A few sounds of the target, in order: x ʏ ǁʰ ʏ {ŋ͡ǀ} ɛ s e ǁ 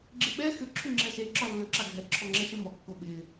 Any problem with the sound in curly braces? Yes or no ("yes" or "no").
yes